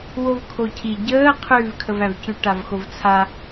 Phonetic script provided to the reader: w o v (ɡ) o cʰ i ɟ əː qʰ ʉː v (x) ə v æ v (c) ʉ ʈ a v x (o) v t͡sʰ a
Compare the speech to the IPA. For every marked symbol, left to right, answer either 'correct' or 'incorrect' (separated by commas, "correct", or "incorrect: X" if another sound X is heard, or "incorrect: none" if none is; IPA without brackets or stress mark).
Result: incorrect: kʰ, incorrect: kʰ, correct, correct